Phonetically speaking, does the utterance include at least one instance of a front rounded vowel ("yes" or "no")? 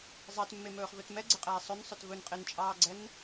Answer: no